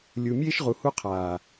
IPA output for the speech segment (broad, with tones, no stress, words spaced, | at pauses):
lʲu˨mʲeː˦ʃʁu˨ hu˦qʰaː˨